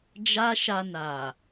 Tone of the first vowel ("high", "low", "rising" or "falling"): high